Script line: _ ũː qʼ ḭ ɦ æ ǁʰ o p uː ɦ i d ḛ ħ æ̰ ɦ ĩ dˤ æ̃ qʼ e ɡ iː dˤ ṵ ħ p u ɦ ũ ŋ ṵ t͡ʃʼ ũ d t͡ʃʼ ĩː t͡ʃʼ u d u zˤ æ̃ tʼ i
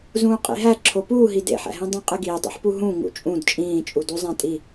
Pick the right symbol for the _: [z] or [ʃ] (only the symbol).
z